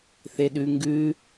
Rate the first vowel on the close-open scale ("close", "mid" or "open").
mid